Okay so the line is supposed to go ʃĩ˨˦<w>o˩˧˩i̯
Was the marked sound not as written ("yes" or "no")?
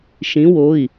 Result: no